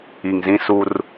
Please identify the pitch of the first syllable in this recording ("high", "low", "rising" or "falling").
low